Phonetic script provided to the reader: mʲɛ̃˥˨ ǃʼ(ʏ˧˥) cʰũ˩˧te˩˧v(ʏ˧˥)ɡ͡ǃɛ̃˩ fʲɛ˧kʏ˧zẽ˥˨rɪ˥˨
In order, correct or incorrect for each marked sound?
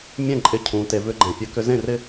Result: incorrect: ɪ˧˥, correct

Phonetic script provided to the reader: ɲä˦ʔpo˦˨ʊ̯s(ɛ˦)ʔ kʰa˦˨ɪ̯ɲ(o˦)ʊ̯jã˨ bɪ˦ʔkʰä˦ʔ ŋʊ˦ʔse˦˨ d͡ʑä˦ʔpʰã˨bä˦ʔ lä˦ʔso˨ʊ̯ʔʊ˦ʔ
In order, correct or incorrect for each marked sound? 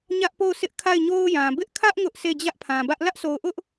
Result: incorrect: ɪ˦, correct

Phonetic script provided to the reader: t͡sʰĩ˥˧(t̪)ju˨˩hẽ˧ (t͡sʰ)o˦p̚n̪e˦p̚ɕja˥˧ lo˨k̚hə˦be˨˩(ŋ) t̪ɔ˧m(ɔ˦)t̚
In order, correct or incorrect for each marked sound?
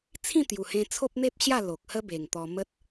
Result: correct, correct, correct, incorrect: ə˦

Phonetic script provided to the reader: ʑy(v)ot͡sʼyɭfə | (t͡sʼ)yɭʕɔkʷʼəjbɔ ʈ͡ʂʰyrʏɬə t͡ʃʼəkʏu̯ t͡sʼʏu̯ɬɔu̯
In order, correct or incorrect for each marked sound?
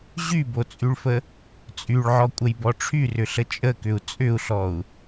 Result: incorrect: b, correct

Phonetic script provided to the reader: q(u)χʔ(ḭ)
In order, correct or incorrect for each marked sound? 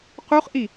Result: correct, incorrect: i

